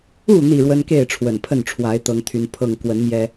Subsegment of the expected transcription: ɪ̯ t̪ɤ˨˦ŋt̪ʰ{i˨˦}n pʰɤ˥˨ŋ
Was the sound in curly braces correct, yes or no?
no